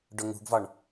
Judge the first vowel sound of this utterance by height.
mid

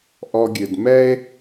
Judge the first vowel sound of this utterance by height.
mid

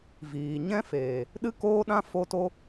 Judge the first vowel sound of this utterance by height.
high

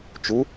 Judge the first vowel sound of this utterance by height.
high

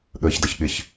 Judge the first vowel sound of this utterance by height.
mid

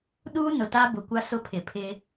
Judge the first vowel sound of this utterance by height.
high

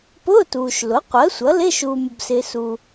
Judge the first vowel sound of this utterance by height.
high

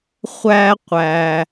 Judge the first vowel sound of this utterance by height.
low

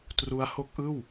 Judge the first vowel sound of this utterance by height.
high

